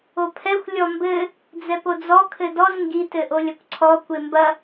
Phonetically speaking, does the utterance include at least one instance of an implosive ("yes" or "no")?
no